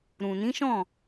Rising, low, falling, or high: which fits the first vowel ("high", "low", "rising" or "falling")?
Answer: low